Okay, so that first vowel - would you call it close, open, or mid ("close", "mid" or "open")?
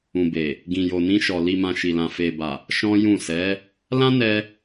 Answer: close